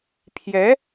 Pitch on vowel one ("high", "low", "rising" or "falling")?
rising